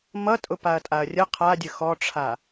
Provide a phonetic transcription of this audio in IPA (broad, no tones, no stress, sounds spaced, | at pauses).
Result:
m ʌ tʼ ʊ p a ɐ̯ tʼ a ɐ̯ rʲ ə qʰ a dʲ ə x ɔ ʈ͡ʂʰ a